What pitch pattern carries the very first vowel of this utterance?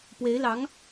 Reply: rising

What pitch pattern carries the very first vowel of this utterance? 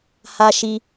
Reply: high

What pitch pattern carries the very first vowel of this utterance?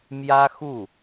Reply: high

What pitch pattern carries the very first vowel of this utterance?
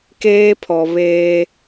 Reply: high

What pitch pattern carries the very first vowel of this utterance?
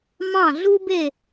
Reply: falling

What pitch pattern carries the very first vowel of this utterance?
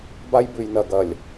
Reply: high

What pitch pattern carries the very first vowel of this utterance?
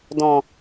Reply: low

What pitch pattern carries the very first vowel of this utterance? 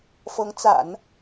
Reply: rising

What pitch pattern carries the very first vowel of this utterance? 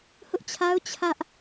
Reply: high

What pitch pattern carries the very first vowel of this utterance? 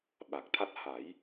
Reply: low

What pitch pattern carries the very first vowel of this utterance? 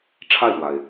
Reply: falling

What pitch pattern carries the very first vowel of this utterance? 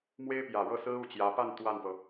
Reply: high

